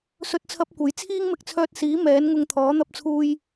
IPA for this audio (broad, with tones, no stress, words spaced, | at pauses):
sɵ˥t̚t͡sʰɐ˥p̚kʷɐ˨˥j t͡sʰiː˥ŋmɪ˧k̚t͡sʰœː˧t̚siː˨˥ mɛː˨˥n ŋʊ˧ŋt̪ʰɔː˨˥n̪ɐ˧p̚t͡sʰuː˧j